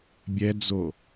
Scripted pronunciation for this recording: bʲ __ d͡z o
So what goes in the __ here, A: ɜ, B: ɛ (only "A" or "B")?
B